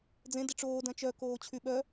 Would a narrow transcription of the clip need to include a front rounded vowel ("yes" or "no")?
yes